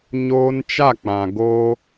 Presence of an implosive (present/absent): absent